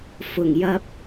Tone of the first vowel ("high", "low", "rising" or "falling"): low